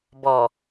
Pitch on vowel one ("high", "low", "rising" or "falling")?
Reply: low